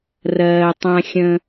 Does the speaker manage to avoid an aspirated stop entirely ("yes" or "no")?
yes